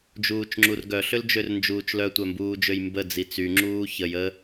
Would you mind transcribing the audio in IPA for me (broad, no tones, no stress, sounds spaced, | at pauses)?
d͡ʒ uː t͡ʃ ŋ͡ǁ u r ɡ œ ɬ ø l d͡ʒ ø r n d͡ʒ uː t͡ʃ l œ tʷ œ m b uː d͡ʒ ø j m b ə d͡z i t͡s y ŋ͡ǁ uː ç ə j ə